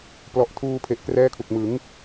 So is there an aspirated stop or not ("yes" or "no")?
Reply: yes